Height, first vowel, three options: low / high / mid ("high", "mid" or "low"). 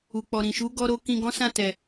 high